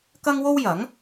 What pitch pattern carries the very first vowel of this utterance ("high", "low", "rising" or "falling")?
high